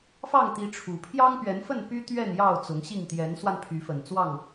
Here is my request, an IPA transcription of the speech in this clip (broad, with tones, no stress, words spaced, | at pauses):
fɑ˥˨ŋt̪i˨˦ ʈ͡ʂʰu˨˩ pʰjɑ˦ŋpɥɛ˨˦nfə˥˨n py˦t̪ɥɛ˥˨n jɑ˥˨ʊ̯ t͡sʊ˨˦ŋɕi˥˨ŋ t̪jɛ˨˦nswa˧npʰy˨˦fə˨˩n t͡swɑ˥˨ŋ